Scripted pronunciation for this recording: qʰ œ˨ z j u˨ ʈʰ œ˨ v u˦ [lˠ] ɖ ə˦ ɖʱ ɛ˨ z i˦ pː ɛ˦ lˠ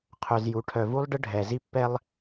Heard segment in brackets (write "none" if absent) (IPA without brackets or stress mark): lˠ